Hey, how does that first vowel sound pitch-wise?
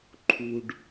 low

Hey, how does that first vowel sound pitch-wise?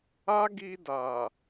high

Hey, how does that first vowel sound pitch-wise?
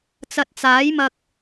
low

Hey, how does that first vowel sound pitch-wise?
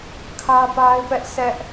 high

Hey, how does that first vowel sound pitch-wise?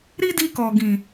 high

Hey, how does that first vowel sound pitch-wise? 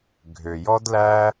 low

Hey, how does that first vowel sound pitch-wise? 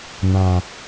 low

